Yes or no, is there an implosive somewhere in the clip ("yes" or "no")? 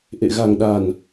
yes